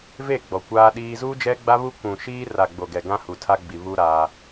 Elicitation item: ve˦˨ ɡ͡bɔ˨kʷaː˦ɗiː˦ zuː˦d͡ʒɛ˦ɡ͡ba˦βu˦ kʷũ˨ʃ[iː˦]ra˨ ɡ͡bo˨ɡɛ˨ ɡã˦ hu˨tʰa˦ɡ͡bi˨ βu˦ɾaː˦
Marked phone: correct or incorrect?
correct